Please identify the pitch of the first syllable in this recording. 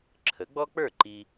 rising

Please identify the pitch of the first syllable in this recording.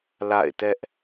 falling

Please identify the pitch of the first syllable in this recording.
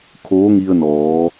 rising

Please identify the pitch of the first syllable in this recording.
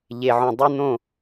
low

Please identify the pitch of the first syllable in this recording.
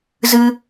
high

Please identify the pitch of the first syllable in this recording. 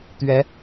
rising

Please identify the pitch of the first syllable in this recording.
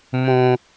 low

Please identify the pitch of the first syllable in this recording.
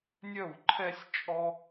falling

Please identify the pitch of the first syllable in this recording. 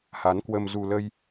rising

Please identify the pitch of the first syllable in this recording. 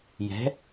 rising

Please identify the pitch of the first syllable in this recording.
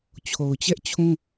low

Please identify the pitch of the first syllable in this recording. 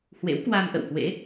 rising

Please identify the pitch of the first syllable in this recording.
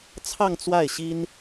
falling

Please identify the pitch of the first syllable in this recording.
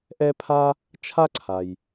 high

